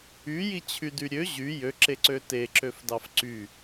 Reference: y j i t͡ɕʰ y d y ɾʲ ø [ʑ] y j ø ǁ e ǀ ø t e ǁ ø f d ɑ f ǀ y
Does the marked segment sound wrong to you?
no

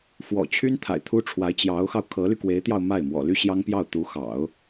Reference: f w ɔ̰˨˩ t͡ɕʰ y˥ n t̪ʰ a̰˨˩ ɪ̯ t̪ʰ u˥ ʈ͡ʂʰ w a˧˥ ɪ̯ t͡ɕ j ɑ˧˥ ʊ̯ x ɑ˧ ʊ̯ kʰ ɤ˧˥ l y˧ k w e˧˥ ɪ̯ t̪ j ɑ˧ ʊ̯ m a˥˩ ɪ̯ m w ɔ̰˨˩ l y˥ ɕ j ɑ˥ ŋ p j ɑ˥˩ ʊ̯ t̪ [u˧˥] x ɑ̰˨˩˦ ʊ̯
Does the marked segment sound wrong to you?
no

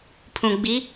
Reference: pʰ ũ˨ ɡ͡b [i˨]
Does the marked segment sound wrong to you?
yes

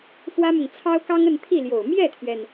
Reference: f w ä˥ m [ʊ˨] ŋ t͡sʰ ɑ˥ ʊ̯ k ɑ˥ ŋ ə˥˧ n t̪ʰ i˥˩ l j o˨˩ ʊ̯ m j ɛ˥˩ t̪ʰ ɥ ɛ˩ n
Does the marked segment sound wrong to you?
no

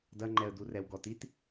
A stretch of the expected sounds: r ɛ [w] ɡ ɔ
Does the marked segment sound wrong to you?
no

